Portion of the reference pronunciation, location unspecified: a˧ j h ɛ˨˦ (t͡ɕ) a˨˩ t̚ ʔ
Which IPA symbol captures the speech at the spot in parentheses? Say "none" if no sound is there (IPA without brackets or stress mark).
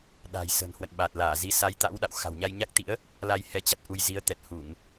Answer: t͡ɕ